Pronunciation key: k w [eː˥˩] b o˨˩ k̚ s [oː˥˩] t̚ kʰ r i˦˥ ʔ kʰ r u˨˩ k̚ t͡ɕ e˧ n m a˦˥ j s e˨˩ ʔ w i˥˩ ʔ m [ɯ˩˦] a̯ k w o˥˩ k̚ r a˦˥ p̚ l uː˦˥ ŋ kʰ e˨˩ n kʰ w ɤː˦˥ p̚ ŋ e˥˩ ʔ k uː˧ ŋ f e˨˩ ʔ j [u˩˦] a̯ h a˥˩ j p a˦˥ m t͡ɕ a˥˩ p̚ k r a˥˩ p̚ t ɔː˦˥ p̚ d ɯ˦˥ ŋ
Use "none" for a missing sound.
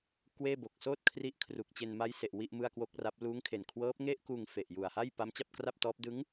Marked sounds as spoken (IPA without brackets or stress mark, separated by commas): eː˥˩, oː˥˩, ɯ˥˩, u˨˩